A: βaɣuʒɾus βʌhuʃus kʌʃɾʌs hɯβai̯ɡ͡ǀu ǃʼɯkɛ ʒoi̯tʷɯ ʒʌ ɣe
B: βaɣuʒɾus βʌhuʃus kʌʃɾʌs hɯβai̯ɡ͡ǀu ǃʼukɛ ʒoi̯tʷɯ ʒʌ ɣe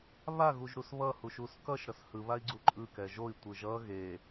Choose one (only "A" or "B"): A